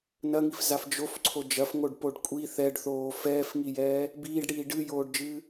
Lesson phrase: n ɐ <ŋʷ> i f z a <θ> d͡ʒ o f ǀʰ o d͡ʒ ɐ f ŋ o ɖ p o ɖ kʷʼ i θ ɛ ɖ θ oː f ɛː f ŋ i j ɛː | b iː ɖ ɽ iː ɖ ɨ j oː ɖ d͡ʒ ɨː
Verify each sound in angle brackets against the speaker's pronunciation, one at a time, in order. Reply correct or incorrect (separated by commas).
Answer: incorrect, incorrect